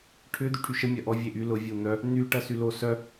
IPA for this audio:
ʈʰʏ d̪yʈʰyʃə mʲɐʔɔ vʲeʔy lʊ vʲun̪œ | n̪y ʈɐsylo sœ

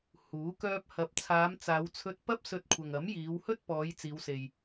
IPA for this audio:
huː˨˥kœː˥p̚ hɐ˨p̚t͡sʰaː˨˧m t͡saː˨˧wt͡sʰɵ˧t̚ pɐ˥p̚ sɵ˧t̚kʷʰɐ˨ŋɐ˨˥m jiː˨˧whɵ˥t̚pɔː˨˧j t͡siː˨˧wse˨j

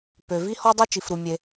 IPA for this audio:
pø˩vi˥ hɔ˥dˤø˥ t͡ʃi˩fɾu˩ mʲe˩

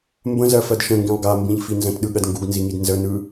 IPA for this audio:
mbə̃zɜfɜd ʃə̃ŋɡĩlˠ ɡambĩʎfi nzə̃tɗɯɠɜd ŋɡuɡnziŋid nzənɯ

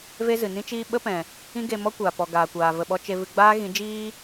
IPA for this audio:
ve˦zɨ˨nĩ˦t͡ʃiː˦ ɓə˦pɛ̃˨ | ĩ˦ɡe˧ mɔ˦kʷaː˨pɔ˨ ɡaː˨kʷaː˨ və˧ɓɔ˦ t͡ʃe˧vɨ˧ɡ͡baː˦ ɣĩ˨˦d͡ʒiː˦

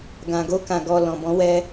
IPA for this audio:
ɡã˨ ɡo˧kã˨ɡɔ˨ lɔ̃˨bɔ̃˨˦wɛ˧

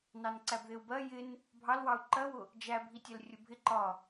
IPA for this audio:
nɑnǀæbðɪu̯bɜ jɪn | bʱɑlwɑu̯ ǃɜwʊ | d͡ʒæbʱi tʲɜlrʲʊbʱɪ ǃɒ

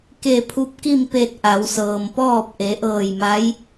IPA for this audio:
ke˧˩pʰu˧˥p̚ki˥˨m pe˧t̚ ʔa˩˧wsɤː˩mpɔː˥˨p̚ ʔe˩˧ʔɤː˧˩jma˧˥j

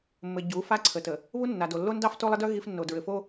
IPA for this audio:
mːɘ˨ ɟu˨˦ fa˦ǀʰə˨tə˨ | βu˦nːa˨do˨ lːo˦ndɑ˦f to˦lˠə˦dœ˦ ɣi˦fnːo˨ dɹɘ˨fo˦

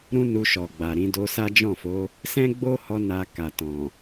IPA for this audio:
ɾũ˦nu˧ʃɔ˨ ɡ͡ba˨ɾĩ˧ do˧sa˦d͡ʒɔ̃˦˨fo˨˦ | sɛ̃˦ɡ͡bo˦hɔ˧ na˧ ka˨ tɔ̃˨

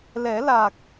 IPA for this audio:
lɛ˨˩˦la˨˩k̚

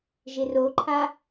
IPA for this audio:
ʒɪroǃʰa

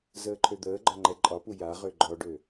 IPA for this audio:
zəːǃʰød̪əːɡ͡ǃɒ ŋ͡ǃɛǃʼɒpu jaʁø ɡ͡ǃɔɖø

